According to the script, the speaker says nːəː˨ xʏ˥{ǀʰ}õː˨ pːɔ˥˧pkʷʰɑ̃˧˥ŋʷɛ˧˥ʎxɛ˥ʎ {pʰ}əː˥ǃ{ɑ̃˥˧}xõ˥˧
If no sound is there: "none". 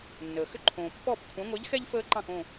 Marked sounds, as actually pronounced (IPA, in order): ǃʰ, f, ɑ̃˥˧

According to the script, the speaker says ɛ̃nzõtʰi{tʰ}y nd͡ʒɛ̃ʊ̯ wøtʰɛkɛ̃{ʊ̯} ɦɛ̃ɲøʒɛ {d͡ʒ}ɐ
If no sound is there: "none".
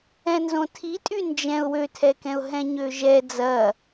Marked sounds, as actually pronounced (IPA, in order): tʼ, ʊ̯, d͡z

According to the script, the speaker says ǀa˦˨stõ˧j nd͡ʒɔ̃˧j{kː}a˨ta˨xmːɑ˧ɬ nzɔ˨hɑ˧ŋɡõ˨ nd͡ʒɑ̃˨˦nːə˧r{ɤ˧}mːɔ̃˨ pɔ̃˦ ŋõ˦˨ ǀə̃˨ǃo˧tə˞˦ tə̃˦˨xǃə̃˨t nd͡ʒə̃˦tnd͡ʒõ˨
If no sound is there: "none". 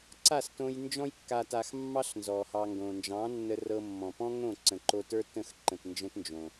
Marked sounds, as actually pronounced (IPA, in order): kː, ɤ˧

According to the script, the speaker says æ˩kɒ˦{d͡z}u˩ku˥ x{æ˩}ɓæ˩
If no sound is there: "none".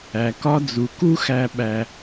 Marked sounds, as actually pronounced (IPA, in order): d͡z, æ˨

